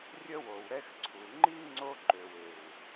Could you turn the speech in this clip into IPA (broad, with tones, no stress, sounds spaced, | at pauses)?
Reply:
rʲ ə˦ w o˨ w ɾ ɛ˦ x ǀʰ u˨ ŋ͡ǃ i˦ ŋ͡ǀ o˦ ǃ ø˨ w e˨ w